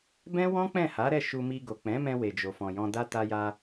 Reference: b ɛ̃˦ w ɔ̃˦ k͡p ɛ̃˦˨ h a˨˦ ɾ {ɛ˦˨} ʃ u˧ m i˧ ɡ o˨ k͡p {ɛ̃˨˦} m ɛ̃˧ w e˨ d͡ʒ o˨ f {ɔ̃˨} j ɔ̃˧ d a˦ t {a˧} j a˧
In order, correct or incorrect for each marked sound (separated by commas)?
correct, correct, correct, correct